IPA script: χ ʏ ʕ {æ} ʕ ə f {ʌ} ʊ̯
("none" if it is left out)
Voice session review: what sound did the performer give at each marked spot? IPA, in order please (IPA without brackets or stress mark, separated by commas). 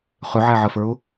æ, ə˞